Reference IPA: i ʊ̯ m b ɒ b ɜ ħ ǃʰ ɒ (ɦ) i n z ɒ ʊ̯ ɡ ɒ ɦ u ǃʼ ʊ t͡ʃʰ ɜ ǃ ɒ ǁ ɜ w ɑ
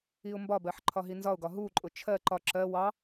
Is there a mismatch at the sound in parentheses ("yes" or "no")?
no